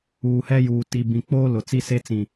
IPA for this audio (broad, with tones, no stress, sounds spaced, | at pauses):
uː˨ h ɛ˦ j uː˨ t i˨ b ĩ˨ k͡p oː˦ l ʊ˨ t͡s i˦ s e˦ t͡s ĩ˨